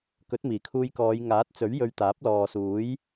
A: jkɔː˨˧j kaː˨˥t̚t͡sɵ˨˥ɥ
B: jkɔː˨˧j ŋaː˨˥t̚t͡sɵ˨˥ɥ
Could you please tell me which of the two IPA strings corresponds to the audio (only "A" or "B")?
B